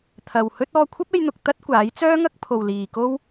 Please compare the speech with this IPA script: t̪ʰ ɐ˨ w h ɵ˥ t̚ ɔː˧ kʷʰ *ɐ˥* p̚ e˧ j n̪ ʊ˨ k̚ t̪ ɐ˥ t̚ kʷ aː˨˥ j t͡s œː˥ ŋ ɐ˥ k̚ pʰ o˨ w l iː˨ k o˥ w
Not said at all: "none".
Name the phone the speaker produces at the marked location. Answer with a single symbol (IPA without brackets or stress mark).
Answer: ɐ˥